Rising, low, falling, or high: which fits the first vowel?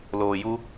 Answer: low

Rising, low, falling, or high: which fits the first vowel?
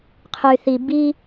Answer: low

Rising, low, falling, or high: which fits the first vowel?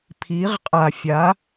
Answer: rising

